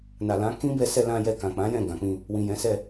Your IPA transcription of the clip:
n a˨ l ã˨˦ k ĩ˦ b ɛ˧ s ɛ˧ l ã˧ j ɛ˧ k ã˨ k͡p ã˨˦ j ɛ̃˦˨ ɡ ã˨ k͡p ĩ˧ | w ĩ˨ j ɛ̃˨˦ s ɛ˦˨

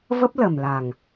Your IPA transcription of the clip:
v ə˦˥ p̚ l ə˨˩ m l a˨˩ ŋ

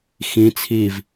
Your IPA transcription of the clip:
x ĩ t͡sʰ i v

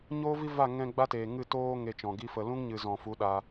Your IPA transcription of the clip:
ɲ oː˦ v i˦ v a˦˨ ŋ ɛ̃˧ ɡ͡b a˦ t eː˨ ŋ ɨ˦˨ t oː˦ ŋ e˧ t͡ʃ ɔ̃˨ ɡ i˦ f ə˧ l ũ˦ ŋ ɲ ɨ˨ z ɔ̃˨ f u˨˦ ɗ a˧

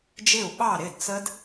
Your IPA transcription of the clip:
d͡ʒ ɪ˥˩ u̯ ɓ ɑ˥˩ ɾ ɪ˥˩ d t͡s ə˦˥ d

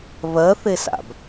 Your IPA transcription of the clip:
β ɜ θ e s a̰ b

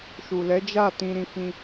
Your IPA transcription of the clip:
ʃ u˨ l ɛ˨˦ d͡ʒ a˦˨ t ĩ˧ ɾ ĩ˧ f ĩ˧

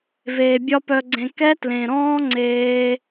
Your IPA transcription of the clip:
v eː˨ bʲ ɒ˦ p œ˧ ɡ͡ǀ ẽ˧ k ɛ˦ t l ẽ˨ ɾ ɔ̃ː˦ ŋ͡ǀ eː˦

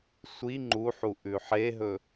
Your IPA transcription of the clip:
sʷ i ŋ͡ǃ u ħ u ʔ ʉ ħ e ɦ ɵ

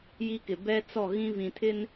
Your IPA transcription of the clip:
j i˦ k ɪ˨ b ɛ˦ t͡s ɔ˦˨ ɣ ĩ˦ v ĩ˨ tʰ ɪ˦ n

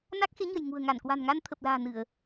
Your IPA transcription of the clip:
n a˦˥ k̚ x e˨˦ ɲ ə̤˨˩ j ŋ ṳ˨˩ ə̯ ŋ a˧˩ n k w a̤˨˩ n ŋ a˧ n t̪ʰ ə˨˩ p̚ l a̤ː˨˩ n ɨ˧˩˨ ə̯

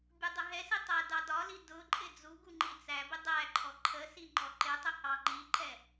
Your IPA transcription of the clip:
bʲ u dˤ ʊ ɦ ɛ s i tˤ ɜ d ɑ d ɒ l i d ʊ ǃʼ ɪ d͡z u ɡ u ŋ͡ǃ i t͡s æ b ɪ dˤ æ ǃʰ ɔ ǃʰ ə s i ŋ͡ǃ ɔ ǃ ɪ tˤ ʊ h ɑ ŋ͡ǃ i ǃ ɛ

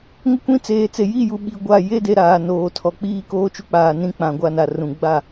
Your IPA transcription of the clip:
ŋ ɪ˦ kʷ ĩ˦ t͡s eː˨ t͡s e˨ j i˦˨ j u˨ ɓ i˨ ɡʷ a˦˨ j e˦ d e˨ ɾ aː˨ n oː˨ tʰ ɔ˨ k͡p iː˦ k oː˦ t͡ʃ u˦ k͡p aː˨ n ĩ˦ k͡p ã˨ ɡʷ a˦ n a˨ r ũ˨ ɡ͡b a˦˨

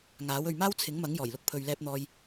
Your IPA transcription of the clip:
ŋ aː˨˥ w ɵ˨ ɥ m aː˥ w t͡sʰ ɪ˨˥ ŋ m ɐ˨˥ ŋ j ɔː˨˩ j l ʊ˧ k̚ pʰ ɵ˨ ɥ l ɛː˧ p̚ n̪ ɔː˧ j

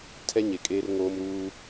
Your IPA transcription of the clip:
tʰ ɛ˦ ɲ e˨ kʼ eː˦ r ŋ oː˦ m ɾ uː˦

